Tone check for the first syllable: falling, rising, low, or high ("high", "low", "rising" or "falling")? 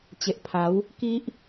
low